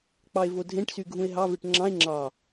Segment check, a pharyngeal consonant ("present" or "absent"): absent